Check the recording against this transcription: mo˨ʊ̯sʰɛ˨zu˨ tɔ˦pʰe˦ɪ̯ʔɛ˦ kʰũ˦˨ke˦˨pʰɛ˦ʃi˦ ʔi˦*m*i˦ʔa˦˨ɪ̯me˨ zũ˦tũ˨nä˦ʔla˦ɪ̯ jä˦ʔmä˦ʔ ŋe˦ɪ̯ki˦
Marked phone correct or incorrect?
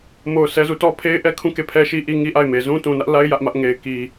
incorrect